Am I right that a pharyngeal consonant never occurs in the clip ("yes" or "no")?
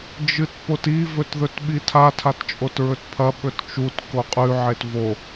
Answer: no